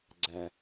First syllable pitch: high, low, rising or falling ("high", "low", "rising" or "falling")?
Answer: low